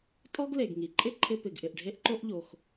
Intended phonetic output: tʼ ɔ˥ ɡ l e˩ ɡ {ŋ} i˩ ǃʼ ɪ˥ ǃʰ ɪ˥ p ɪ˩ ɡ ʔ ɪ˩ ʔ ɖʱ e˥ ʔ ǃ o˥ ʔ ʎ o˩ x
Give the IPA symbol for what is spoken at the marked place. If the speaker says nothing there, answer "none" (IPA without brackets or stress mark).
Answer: ŋ